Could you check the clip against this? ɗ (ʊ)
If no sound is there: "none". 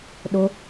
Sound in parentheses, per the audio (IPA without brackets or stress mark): ʊ